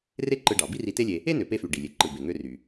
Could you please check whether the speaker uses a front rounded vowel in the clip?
yes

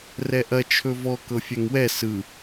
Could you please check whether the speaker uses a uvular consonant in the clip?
no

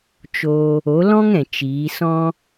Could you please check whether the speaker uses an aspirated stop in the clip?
no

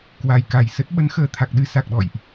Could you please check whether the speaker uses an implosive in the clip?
yes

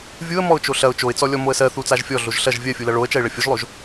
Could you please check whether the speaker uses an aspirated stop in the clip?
no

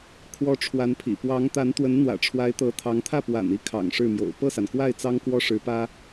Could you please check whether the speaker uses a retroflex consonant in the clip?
yes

